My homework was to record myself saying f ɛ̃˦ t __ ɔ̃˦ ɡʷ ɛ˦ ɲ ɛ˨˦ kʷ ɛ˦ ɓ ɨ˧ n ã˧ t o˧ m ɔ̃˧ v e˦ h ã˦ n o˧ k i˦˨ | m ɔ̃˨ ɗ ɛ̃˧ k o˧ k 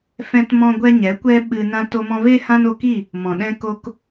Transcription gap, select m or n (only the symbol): m